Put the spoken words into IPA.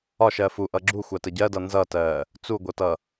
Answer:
ɒ ʃ ɜ f u ʔ ʌ ɡ͡ǁ u xʷ a t ə ɟ ɜ d ʌ n z ʌ t ɜː | t͡s u ɡʷ ʌ t ʌ

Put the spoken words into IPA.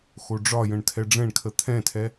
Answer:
x o ɖ͡ʐ ɒ j ə̃ ɳ tʰ ɛ ɖ͡ʐ ɛ̃ ɳ kʰ ə t̪ʰ ɛ̃ tʰ ɛ

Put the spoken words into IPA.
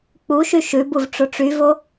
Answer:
k͡p u ʃ y ʃ ʉ b u v ʈ͡ʂ o ʈ͡ʂ y v o

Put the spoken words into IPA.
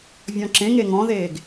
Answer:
vʲ ɔ̃ ǁ ẽ ŋ e ŋ ɔ̃ ð eː ɡ

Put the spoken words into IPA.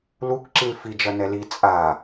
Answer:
l u k ǁ i l f i d͡ʒ ɐ n ɛ l i t͡sʼ a

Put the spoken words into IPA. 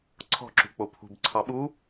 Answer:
ǀʰ ɔ̤ ǁ ṳ k͡p o pʰ ṳ b ǀʰ ɑ ɓ u

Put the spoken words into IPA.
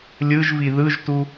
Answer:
lʲ ɯ ʒ v i ð ɯ ʒ t u

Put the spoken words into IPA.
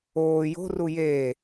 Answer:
oː j o̤ r u j eː

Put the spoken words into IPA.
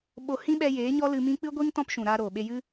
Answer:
ɓ o˧ h ĩ˦ ɓ ɛ˧ j eː˨˦ ɲ ɔ˦ l ɨ˧ m ĩ˦ k͡p ɨ˦ ɡʷ i˦ ŋ t ɔ̃˦ p ʃ ũ˨ ɾ aː˧ ɾ oː˨ ɓ e˧ j ɨ˦

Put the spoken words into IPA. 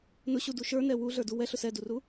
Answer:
n ʊ ɕ u d u ʃ ə˞ n ɛ w u ɮ ə˞ d u w ɛ ɬ ʊ s ɛ d u r u

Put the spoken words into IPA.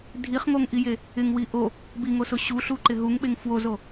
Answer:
dʱ i χ ŋ o ŋ ʔ i j e | ɪ ŋ w i ʔ o | b i ŋ o s ʊ ɕ u ɬ u ǃ ɪ ɦ u ŋ ɓ e ŋ f w o z o

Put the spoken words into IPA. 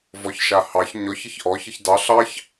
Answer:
v ɔ ç ʃ a h ɑ ç ɲ ɔ ç ə ç ʔ ɔ ç ə ç d ɑ ɬ ɑ ç

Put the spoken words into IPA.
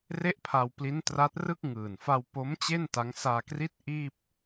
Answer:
r e˥˩ ʔ pʰ a˧ w p l i˦˥ n t r a˦˥ t̚ r ɯ˥˩ k̚ ŋ ɯː˨˩ n f a˧ w p o˦˥ m t͡ɕ e˥˩ n t a˦˥ ŋ s aː˧ k r i˦˥ t̚ ʔ iː˥˩ p̚

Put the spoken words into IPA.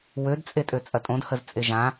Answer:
w ø d t͡sʼ e tʼ ø t͡sʼ ɐ tʼ õ d h ə z t͡sʼ e ʒ ã

